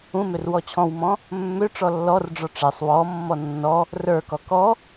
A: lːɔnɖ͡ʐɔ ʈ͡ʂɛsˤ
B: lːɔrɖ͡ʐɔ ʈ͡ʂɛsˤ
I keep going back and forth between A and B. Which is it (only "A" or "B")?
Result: B